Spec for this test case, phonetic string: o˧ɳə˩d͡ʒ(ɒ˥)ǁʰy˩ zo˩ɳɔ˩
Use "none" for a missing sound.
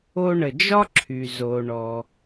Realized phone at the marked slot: ɒ˥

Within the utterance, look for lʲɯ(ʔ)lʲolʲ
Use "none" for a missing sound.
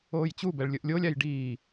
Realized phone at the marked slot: ʔ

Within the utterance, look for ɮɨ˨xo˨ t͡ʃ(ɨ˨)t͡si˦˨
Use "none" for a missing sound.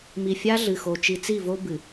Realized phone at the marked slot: i˨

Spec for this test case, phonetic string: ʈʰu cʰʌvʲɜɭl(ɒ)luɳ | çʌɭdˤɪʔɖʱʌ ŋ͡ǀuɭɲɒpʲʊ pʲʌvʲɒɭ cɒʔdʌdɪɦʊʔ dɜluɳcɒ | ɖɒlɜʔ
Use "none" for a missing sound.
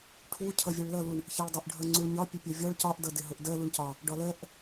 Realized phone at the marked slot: ʌ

